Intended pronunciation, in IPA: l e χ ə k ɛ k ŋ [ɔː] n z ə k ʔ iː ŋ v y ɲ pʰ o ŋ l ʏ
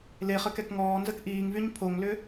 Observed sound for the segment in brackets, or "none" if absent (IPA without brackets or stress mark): ɔː